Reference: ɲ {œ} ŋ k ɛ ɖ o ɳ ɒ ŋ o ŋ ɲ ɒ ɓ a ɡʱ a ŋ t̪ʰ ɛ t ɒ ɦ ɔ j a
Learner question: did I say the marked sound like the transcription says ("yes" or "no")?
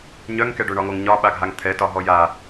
yes